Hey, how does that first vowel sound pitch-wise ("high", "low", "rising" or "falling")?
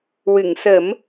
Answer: low